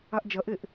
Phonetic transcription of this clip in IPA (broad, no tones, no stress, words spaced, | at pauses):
aʔd͡ʒɐʔeʔ